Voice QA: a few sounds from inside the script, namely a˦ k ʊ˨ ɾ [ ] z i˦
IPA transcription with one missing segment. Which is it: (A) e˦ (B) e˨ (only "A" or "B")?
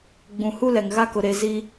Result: B